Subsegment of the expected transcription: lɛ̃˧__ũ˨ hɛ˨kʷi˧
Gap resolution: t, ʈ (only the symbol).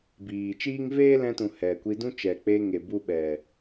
t